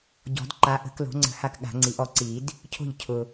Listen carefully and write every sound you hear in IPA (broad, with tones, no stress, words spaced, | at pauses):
ɟɔ̤˨˩˦d ǃa˩˥ʔə̤˨˩˦klo̤˩˥ŋ͡ǀə̤˨˩˦ ha˥˩kɠa̤˨˩˦ŋ͡ǀi˨˩˦ʔɔ˩˥ ǀi˨˩˦d | cʰo̤˥˩ʎcʰʊ˨